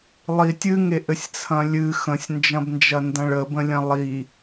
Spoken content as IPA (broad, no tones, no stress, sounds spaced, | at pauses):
lˠ i tʲ ɨ ŋ e ʔ ɘ sʲ t͡sʰ ɐ̃ lʲ ɨ x ə̃ sʲ n d͡ʒ ɐ̃ b n d͡ʒ ɐ n d ɐ̃ ɭ ə b ə̃ lʲ ɐ̃ lˠ i